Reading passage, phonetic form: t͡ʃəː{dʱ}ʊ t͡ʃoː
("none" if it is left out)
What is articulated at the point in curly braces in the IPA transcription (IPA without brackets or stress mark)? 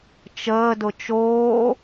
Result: d